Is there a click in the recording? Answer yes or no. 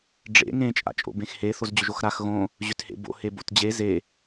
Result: no